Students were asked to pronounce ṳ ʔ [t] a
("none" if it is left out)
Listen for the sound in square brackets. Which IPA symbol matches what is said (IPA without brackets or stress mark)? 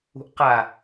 q